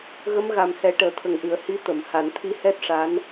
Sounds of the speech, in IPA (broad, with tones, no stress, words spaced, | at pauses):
ɣə˧˥mɣa˨˩mhɛ˨˩˦ ʈəː˨˩t̪ʰə˨˩ŋʔɨ˨˩˨ə̯ hi˧˥ t̪ə˨˩˨mha˨˩˨nt̪ʰi˧˥ hɛ˦˥t̚ʂa˧˥n